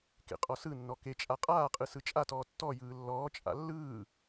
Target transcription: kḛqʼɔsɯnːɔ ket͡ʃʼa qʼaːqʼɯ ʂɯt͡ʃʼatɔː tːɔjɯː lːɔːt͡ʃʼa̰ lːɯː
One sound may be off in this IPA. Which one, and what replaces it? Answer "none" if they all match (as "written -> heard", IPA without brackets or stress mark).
ʂ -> s